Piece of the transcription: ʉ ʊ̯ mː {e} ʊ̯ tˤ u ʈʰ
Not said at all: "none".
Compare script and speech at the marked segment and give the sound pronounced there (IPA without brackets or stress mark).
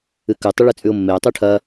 e